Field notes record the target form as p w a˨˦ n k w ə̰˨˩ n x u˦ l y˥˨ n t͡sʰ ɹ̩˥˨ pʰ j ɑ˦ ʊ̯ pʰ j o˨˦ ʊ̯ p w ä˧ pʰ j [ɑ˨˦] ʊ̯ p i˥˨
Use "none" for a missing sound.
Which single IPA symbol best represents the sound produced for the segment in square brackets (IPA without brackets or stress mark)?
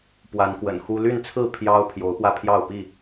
ɑ˥˨